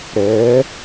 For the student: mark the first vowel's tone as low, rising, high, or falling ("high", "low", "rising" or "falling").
rising